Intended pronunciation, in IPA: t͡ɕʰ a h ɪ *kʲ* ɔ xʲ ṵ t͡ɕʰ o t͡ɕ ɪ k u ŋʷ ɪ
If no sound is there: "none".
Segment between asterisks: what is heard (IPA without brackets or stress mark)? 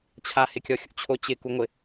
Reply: kʲ